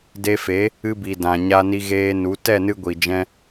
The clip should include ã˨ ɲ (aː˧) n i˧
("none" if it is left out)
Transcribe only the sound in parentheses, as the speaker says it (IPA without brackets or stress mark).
a˧